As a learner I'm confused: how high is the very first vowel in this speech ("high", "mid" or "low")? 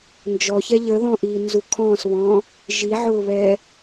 mid